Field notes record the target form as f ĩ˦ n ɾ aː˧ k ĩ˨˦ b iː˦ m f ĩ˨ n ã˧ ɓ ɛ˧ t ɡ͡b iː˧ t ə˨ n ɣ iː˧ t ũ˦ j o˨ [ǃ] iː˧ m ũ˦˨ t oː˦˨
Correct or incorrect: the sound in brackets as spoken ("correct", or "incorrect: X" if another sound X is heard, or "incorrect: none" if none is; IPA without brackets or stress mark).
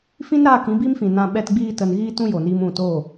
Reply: incorrect: n